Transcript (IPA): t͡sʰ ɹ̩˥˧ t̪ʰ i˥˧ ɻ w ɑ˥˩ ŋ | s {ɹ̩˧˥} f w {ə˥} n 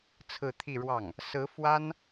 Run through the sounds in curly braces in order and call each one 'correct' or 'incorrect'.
correct, incorrect: a˥

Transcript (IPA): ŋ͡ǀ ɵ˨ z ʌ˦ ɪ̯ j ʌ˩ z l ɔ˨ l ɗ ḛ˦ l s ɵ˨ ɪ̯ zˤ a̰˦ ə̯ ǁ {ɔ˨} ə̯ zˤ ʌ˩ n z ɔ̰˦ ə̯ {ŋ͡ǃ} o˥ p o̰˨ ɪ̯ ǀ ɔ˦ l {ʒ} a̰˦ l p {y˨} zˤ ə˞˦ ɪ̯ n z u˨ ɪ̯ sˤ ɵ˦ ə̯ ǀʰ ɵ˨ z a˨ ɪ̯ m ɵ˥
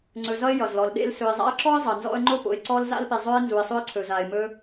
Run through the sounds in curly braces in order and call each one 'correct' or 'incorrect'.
incorrect: ɔ˥, correct, incorrect: z, incorrect: e˨

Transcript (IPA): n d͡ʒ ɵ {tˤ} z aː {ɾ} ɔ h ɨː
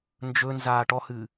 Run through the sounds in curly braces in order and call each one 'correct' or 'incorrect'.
incorrect: n, incorrect: ʈ

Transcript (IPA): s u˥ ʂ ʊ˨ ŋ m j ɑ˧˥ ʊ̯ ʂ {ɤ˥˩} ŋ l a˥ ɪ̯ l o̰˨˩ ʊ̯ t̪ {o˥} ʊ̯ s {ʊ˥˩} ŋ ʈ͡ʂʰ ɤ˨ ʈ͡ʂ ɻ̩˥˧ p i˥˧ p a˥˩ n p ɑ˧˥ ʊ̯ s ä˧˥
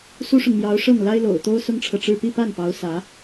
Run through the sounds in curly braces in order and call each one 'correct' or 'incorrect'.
correct, correct, incorrect: ʊ˥

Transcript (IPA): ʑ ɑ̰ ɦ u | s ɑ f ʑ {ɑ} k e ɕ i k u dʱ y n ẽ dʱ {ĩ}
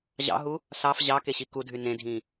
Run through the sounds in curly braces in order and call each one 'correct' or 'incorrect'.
correct, correct

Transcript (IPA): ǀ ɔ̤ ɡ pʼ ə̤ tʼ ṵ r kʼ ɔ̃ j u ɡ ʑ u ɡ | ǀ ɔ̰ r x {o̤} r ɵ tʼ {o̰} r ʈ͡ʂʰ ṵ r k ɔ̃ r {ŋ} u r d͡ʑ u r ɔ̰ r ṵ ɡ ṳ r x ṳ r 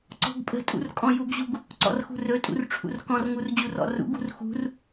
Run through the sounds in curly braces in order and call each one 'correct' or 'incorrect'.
incorrect: ṳ, incorrect: ṵ, correct

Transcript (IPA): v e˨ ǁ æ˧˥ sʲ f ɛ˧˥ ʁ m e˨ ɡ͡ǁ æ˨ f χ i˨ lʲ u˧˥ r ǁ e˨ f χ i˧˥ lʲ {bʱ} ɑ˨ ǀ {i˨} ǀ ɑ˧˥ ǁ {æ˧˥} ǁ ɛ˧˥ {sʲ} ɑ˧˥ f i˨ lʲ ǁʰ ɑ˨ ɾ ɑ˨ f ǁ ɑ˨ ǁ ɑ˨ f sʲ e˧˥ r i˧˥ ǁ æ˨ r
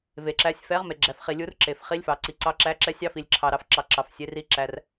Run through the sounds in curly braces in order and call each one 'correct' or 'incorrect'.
incorrect: f, correct, correct, correct

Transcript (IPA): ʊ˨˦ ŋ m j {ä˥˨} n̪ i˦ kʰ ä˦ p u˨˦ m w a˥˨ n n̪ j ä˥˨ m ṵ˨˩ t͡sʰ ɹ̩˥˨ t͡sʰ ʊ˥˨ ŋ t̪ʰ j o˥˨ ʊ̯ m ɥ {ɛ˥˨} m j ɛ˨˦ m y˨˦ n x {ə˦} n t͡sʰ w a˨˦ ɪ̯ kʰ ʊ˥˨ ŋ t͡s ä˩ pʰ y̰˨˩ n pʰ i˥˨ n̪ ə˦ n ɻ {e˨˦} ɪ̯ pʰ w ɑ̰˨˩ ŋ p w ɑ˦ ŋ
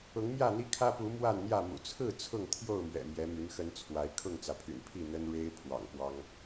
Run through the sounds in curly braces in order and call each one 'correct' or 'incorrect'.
correct, incorrect: ɛ̰˨˩, correct, incorrect: e˦

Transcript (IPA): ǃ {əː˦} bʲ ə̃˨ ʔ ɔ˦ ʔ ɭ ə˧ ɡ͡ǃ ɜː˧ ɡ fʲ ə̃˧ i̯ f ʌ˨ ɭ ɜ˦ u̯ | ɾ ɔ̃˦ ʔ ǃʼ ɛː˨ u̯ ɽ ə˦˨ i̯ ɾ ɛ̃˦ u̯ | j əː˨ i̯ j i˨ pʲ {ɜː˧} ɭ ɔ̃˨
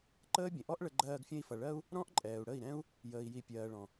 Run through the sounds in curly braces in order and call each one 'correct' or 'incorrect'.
correct, incorrect: ɜː˨

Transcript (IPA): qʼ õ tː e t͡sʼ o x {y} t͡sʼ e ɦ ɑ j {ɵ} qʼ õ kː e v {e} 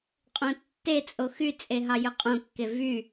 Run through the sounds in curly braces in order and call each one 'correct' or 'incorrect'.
correct, correct, incorrect: y

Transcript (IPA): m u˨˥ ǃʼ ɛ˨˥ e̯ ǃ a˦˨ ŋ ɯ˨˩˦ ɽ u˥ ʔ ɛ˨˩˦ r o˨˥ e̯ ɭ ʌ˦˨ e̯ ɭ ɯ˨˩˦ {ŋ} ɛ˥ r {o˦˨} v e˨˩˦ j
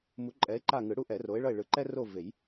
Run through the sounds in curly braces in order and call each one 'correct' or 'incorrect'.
incorrect: ǃ, correct

